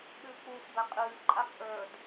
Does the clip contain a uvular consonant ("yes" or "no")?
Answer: yes